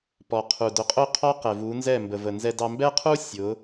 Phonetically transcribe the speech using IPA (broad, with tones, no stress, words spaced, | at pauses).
pɔ˨qʰu˨ dʊ˨˦qʼʊ˦qʰɔ˦ qɛ˨vu˨˦nzɛ˦˨ mbə˨və˨ nzɛ˦dɑ˦ mbɛ˦qʰu˦ sʲʊ˨˦